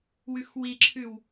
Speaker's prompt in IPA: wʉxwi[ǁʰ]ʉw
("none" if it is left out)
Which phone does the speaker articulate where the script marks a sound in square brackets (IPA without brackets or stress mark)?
ǁʰ